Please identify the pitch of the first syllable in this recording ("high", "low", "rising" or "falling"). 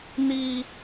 high